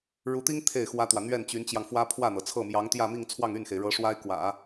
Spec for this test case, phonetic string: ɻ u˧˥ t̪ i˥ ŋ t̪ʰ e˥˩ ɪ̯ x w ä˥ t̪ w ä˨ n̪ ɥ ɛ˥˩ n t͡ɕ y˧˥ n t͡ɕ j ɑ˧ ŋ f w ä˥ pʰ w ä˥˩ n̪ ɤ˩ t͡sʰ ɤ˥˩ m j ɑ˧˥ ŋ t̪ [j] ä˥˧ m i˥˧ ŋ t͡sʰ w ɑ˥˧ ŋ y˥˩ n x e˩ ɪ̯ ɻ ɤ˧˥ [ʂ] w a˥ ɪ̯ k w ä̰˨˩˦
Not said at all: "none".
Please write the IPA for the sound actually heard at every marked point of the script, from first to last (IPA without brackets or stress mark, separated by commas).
j, ʂ